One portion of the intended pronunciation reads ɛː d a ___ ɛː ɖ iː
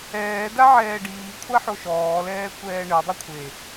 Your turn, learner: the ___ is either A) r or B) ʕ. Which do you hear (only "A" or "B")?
B